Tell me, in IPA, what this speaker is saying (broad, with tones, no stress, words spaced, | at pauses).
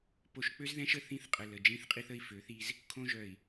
po˨ʃk͡pø˦zðɛ̃˦ʃə˨ θĩ˦θ qʼə˨ lə˨d͡ʒĩ˦θqʼi˦θ ə˦i̯fø˨˦θi˦z | kʰõ˦ ʒœ˨i̯